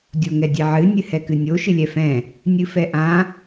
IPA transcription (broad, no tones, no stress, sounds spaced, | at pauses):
dʲ o ŋ ɛ dʲ ɛ ʕ ɨ nʲ ɨ h ɛ k ɨ nʲ o ʃ ɨ lʲ ɛ f ɛ̃ | nʲ ɨ f ɛ ʔ ã